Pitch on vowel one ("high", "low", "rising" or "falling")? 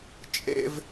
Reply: high